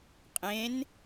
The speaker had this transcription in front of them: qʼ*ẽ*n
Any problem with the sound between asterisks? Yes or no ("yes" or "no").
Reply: no